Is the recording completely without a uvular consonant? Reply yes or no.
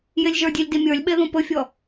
yes